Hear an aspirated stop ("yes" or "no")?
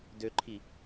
yes